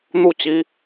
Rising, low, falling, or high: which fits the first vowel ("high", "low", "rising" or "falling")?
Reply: falling